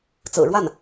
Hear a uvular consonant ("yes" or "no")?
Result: no